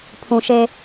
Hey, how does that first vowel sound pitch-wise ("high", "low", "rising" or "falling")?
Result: low